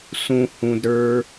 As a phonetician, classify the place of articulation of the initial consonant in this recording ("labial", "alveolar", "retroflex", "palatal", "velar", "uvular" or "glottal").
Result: alveolar